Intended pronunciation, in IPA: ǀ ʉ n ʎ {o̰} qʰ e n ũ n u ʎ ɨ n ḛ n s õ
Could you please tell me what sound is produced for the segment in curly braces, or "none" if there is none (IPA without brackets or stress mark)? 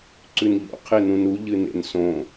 o̰